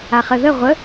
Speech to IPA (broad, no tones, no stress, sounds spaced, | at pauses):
a χ ə ð ə ʁʷ ə